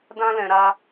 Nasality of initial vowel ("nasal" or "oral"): nasal